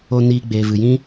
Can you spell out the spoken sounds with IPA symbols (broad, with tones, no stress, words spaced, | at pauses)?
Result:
o˧ niː˧ ɡ͡beː˨vɨ˨jĩ˦